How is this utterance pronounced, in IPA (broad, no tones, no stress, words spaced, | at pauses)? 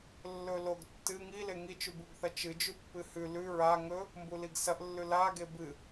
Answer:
lːɵloɡ tːɨ ŋile ŋit͡ʃʉbuɡθɐ t͡ʃɨd͡ʒʉ pːɨhʉ lʉ ɹa ŋɵ | mbuliɡsɐʔlːʉ la ɡebɨ